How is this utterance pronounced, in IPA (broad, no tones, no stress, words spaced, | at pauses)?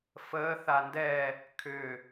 fəːθa ndɛ | kʰʏ